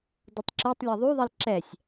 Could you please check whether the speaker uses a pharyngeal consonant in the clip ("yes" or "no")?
no